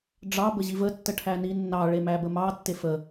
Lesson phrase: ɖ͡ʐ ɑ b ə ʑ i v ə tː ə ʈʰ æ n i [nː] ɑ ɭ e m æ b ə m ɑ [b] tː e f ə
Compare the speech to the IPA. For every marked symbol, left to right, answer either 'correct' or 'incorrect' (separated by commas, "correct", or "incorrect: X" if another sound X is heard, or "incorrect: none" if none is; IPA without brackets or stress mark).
correct, incorrect: none